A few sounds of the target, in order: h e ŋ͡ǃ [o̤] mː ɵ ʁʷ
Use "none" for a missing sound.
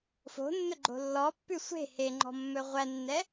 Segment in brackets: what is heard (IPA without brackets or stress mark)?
ɔ̤